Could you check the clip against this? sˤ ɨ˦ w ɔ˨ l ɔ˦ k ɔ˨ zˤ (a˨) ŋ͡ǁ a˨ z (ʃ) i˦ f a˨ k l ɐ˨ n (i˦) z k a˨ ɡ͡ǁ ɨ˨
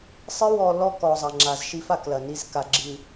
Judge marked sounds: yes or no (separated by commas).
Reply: no, yes, yes